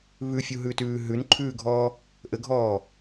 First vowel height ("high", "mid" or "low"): high